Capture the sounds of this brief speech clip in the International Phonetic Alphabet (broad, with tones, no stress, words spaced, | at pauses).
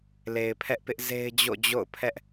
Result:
le˨ɪ̯pʰɛ˦ʔpɪ˦ʔ ze˦ɪ̯d͡ʑo̰˦˨d͡ʑo̰˦˨ʊ̯ pʰɛ˦ʔ